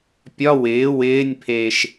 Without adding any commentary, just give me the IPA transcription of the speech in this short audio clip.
pʲ ɒ w ɪː w ɪː nʲ pʰ eː ʃ

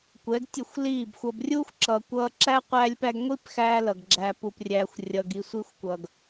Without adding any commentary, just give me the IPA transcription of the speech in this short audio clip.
kʷ ɛ˨˦ ɡ tʲ ə˦˨ xʷ l iː˦˨ b xʷ ʌ˧ b rʲ uː˦ xʷ ǁ ʌ˨ kʷ ʌː˧ ǁ æ˦ qʷ æː˦ lʲ p æ˦ ɡ ŋʷ i˦ p x æː˧ l ʌ˨ ɡ ɡ͡ǁ æ˧ p u˧ p rʲ æː˧ xʷ rʲ ʌ˧ ɡ i˧ sʷ i˧ xʷ kʷ ʌː˨ ɡ

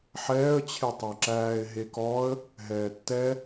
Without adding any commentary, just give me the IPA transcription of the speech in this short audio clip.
ħ ɛː ə̯ t͡ɕʰ e tˤ æ ǁ æː ɪ̯ ɦ e k ɔ ə̯ | ɦ ɛː tː ɛ

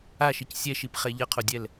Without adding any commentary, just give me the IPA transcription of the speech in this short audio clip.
a ʃ i c sʲ ɛ ʃ i p χ e ʎ ʌ qʰ o dʲ ɛ l

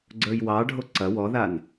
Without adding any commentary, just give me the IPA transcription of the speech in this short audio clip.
ɡ͡ǀ ə˞ j w ɑ ɖʱ o ǀ ɐ w ɔ ð a n

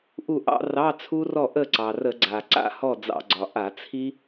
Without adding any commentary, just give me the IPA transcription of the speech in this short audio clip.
ʔ u˥˨ ʔ ɑ̰˦˥ r ɑ˧˥˧ t͡sʰ u˦˥ r ɔ˥˨ ʔ ə˥˨ ǀ ɑ˩ r ə˧˩˧ ɡ͡ǀ a˩ ǀ a̰˥˨ h ɔ˥˨ d͡z ɑ̰˧ ɡ͡ǀ ɒ˩ ʔ a˧˩˧ t͡sʰ i˦˥

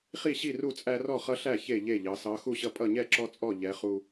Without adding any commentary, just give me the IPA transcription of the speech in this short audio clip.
χ i˥˨ ɕ i˥˨ r u˥˨ t͡sʼ æ˦ r ɔ˥˨ χ ʌ˦ ɬ æ˥˨ ç e˥˨ ʎ e˥˨ ʎ ɑ˨˦ s ɑ˨˦ x u˥˨ ɕ ʌ˦ pʼ ʌ˥˨ ɲ ɛ˥˨ ǁ ɔ˦ t͡sʼ ɔ˥˨ ʎ ɛ˨˦ χ u˦

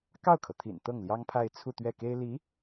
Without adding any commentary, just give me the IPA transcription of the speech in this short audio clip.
k ɑ˥˩ ʊ̯ kʰ ɤ˩ t̪ʰ ḭ˨˩ n t̪ ɤ˥˩ ŋ l j ɑ˥ ŋ pʰ a˥˧ ɪ̯ t͡sʰ u˥˧ t̪ ɥ ɛ˥˩ k e˥ ɪ̯ l i˧˥

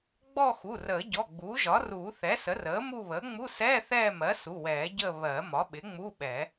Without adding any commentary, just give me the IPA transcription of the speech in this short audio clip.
ɡ͡b ɔ˦˨ x u˩˧˩ r əː˨˩˦ ɟ ɔ˩˧˩ ɡ͡b uː˩˥ ʒ ɒ˩˥ r uː˨˩˦ θ ɛ˩˥ s ə˩˥ r əː˩˥ m u˦˨ β əː˩˥ ŋ͡m u˧˥˧ s ɛː˧˥˧ θ ɛː˦˨ m ɜ˩˥ s u˩˧˩ w ɛː˨˩˦ ɟ əː˦˨ β ɜ˨˩˦ m ɒ˩˥ ɓ ɪ˩˥ ŋ͡m u˧˥˧ ɓ ɛ˨˩˦

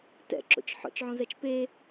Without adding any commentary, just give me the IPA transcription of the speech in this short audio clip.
t ɛ̰ ǁ o̰ t͡ʃ ħ ɔ̰ t͡ʃ ʕ õ z ɛ t͡ʃ p e

